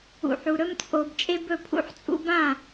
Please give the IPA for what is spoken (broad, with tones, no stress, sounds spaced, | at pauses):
ṵ˨ ħ u˨ ɾ ɵ˦ m t͡sʼ o˨ b t͡ʃʼ e˦ b ɵ˦˨ pʰ ṵ˦ ħ t͡sʼ ṵ˦ b ã˦˨